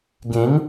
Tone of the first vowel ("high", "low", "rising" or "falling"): rising